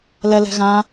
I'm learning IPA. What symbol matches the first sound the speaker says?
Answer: l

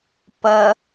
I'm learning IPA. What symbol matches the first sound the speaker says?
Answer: p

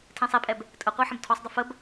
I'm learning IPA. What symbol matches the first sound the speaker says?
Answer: tʰ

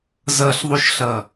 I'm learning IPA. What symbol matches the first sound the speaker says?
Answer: z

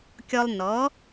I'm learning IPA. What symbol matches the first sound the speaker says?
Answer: kʲ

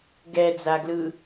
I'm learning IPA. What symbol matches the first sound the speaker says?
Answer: ɡ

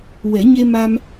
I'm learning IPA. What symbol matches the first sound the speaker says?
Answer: w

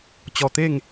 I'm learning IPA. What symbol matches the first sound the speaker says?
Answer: t͡ɕ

